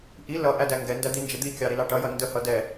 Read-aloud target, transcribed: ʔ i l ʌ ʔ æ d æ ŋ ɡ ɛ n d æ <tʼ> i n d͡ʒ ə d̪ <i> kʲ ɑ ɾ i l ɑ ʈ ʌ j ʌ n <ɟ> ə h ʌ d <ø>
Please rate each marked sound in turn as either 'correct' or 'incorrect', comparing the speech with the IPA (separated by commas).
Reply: incorrect, correct, incorrect, incorrect